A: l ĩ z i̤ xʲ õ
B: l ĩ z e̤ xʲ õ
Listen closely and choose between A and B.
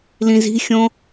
A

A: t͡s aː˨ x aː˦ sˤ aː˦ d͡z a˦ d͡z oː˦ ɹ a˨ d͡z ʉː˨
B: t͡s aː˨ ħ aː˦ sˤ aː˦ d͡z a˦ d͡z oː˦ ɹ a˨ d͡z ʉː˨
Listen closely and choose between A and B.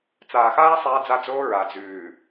A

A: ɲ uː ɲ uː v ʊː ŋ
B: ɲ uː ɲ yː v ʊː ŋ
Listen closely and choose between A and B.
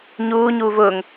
A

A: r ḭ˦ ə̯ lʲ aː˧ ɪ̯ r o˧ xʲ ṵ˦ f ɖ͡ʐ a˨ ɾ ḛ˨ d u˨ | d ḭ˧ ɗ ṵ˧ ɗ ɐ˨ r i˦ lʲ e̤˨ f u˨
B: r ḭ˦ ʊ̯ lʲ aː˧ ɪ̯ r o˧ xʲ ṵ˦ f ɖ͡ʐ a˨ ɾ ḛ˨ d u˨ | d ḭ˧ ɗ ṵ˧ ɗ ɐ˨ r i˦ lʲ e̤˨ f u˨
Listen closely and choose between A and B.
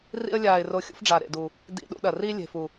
A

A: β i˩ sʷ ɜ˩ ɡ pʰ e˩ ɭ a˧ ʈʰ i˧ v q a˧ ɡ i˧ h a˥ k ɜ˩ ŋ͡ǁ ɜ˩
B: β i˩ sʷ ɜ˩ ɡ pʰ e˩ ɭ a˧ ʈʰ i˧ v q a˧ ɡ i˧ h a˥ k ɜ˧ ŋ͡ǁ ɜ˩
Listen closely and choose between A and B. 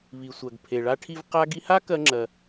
B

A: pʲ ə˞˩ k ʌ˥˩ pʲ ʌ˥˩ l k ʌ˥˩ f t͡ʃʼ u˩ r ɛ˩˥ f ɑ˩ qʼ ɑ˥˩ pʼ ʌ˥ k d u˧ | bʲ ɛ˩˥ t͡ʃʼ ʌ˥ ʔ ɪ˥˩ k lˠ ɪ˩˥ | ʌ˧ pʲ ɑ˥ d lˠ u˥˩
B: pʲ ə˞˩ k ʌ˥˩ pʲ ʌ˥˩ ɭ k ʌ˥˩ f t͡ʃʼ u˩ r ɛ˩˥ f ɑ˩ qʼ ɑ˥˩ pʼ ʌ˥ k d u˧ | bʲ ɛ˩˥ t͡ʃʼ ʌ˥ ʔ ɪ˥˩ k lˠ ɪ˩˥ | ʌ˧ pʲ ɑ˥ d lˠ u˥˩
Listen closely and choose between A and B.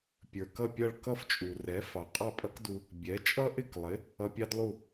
B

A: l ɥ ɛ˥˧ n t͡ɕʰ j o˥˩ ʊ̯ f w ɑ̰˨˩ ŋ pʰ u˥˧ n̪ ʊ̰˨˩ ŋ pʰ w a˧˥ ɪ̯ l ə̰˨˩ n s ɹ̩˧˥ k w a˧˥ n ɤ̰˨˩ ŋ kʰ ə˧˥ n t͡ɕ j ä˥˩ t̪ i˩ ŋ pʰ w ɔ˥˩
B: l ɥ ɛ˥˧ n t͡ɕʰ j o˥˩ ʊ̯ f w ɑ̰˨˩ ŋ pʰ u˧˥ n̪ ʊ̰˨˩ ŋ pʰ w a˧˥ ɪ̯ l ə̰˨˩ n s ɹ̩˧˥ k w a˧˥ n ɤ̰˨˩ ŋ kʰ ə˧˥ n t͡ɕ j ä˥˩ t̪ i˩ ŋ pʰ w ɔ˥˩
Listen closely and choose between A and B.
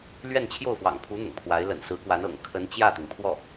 B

